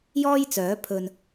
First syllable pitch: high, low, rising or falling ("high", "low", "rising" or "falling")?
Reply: high